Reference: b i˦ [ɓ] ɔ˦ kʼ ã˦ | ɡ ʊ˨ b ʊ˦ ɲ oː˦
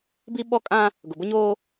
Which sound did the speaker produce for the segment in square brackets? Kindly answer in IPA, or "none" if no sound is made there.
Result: ɓ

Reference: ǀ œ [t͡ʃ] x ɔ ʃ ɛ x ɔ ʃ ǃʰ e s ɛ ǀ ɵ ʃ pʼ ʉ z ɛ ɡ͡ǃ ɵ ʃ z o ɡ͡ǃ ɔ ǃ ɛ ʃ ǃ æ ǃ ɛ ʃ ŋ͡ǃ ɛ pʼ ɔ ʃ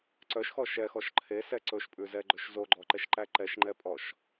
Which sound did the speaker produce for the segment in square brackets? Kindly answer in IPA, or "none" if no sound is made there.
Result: ʃ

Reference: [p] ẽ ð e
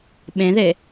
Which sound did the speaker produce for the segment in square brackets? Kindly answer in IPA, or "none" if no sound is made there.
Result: ɓ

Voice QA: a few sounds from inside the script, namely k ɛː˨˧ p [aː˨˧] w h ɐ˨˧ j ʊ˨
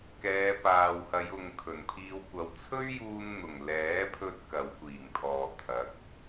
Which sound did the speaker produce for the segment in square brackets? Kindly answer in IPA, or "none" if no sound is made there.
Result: aː˨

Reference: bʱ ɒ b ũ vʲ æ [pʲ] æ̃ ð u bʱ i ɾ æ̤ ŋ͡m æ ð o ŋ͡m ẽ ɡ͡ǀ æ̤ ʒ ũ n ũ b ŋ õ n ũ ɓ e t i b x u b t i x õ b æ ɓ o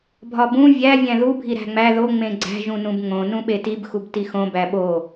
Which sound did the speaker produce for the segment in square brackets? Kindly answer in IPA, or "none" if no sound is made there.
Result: vʲ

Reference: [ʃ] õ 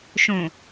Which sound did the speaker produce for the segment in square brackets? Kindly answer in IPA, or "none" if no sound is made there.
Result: ʃ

